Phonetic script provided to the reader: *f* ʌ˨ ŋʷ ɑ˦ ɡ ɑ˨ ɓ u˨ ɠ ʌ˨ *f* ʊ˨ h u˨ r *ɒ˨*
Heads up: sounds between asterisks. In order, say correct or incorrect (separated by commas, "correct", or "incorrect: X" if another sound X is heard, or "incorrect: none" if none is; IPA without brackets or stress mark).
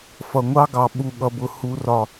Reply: correct, incorrect: b, correct